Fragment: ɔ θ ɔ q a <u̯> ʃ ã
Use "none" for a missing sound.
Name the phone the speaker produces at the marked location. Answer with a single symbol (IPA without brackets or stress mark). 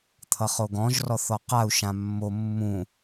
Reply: u̯